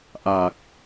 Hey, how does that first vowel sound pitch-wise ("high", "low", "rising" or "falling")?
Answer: low